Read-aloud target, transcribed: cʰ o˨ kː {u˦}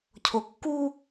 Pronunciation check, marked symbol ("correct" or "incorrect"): correct